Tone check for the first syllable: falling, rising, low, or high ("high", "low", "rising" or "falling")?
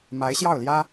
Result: rising